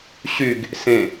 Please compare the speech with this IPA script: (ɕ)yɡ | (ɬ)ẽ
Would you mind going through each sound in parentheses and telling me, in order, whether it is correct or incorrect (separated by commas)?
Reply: correct, incorrect